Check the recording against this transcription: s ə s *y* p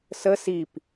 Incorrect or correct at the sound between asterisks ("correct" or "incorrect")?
incorrect